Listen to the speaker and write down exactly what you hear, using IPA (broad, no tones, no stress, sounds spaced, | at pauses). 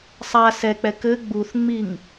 sˤ a s ɛ k͡p ɛ k ɘ ɡ͡b u θ ŋ͡m i ŋ